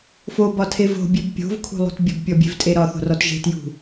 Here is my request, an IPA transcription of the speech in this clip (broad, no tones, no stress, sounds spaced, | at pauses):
f o b ɒ tʰ e v o̤ bʲ e b pʲ o̤ v kʰ ṳ lˠ ṳ t bʲ ə b pʲ ɔ bʲ e̤ v tʼ e ɾ ɒ θ o̤ r ɔ t ʒ e̤ t j ṳ